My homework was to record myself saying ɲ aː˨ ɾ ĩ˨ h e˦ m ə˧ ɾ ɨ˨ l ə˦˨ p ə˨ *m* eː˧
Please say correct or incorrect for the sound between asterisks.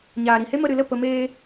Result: correct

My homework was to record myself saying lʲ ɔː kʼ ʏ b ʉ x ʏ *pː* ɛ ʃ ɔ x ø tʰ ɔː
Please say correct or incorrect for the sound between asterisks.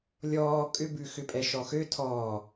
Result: incorrect: pʼ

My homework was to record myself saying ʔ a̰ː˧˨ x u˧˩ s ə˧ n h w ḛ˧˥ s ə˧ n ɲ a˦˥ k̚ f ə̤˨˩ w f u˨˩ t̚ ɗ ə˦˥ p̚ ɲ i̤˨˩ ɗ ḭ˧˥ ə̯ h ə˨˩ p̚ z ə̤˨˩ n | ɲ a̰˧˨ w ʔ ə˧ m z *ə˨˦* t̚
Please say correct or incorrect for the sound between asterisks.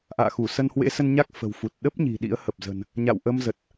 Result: incorrect: ə˨˩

